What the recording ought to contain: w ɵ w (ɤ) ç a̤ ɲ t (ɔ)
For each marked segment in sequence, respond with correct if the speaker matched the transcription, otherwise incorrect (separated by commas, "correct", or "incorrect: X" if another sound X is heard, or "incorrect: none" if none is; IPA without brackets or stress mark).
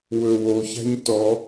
incorrect: o, correct